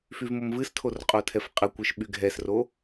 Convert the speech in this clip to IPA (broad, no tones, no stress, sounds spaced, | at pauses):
f y v m o m v ɨ s tʰ o r qʼ o tʰ ɛ f qʼ ə kʷ ɨ ʃ ɓ y ɡʱ ɛ s r o